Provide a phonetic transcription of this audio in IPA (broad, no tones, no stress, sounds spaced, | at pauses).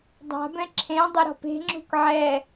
dˤ a̤ b ɛ̃ ǁʰ ẽ dˤ ɘ ɾ ɔ̤ p e̤ ŋ͡ǁ ṳ k ʕ ɛ